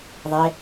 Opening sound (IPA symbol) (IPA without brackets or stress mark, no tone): ðˤ